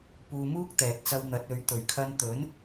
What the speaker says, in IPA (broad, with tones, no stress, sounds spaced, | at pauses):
p uː˧ m uː˥ k̚ t̪ ɛː˨ t̚ t͡s ɐ˧ w n̪ ɐ˨˥ t̚ ɵ˨˥ ɥ t̪ ɵ˨˩ ɥ kʰ ɐ˧ n t̪ ɵ˨˥ n